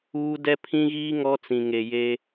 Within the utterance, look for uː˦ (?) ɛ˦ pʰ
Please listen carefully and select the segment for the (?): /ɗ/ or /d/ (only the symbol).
d